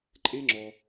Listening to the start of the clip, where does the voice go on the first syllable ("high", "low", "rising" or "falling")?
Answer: high